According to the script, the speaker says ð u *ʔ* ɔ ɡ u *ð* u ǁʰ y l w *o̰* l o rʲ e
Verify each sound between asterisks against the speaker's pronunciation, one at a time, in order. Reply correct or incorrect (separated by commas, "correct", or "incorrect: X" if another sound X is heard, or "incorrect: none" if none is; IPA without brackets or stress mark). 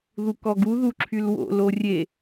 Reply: incorrect: k, correct, correct